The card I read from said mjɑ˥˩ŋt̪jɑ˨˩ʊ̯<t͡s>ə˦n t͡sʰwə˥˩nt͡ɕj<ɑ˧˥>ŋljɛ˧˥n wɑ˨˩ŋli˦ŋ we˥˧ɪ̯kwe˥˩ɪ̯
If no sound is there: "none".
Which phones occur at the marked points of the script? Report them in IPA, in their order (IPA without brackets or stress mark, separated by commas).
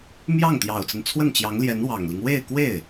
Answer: t͡s, ɑ˧˥